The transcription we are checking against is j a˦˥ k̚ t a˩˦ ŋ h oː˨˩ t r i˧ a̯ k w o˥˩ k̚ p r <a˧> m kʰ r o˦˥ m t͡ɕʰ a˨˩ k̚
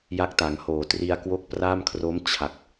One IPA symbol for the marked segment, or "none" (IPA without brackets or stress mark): a˥˩